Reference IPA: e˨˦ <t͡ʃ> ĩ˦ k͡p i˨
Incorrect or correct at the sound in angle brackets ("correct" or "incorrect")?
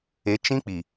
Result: correct